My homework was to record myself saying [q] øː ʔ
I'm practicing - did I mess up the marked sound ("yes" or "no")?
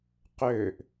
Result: no